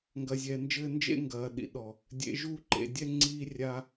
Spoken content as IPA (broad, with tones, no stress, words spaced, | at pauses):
ŋɡɐ˨zʲɛː˨nd͡ʒɘː˦ nd͡ʒḛ˦ŋɡɐː˨ ɗḭ˨ɗɔ˨ | dʲḛ˨ʒu˦˨ǃḛ˨dʲɛ˦ ŋ͡ǀiː˦rʲa˦